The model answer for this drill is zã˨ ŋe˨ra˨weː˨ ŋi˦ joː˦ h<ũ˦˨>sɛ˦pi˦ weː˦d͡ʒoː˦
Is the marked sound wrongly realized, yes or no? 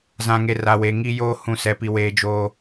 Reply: no